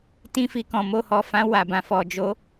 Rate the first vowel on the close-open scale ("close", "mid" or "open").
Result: close